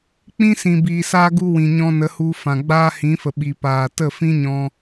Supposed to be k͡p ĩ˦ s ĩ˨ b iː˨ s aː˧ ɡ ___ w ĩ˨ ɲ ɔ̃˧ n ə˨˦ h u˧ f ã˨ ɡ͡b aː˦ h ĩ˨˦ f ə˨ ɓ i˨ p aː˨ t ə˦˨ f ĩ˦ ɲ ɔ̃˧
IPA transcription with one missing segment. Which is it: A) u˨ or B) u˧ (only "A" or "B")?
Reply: B